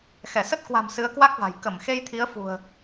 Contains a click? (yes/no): no